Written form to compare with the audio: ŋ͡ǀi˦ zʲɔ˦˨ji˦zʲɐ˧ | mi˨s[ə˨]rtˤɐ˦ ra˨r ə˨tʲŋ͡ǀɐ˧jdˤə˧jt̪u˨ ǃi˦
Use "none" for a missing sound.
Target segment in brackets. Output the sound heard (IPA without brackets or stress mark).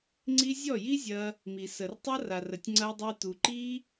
ə˨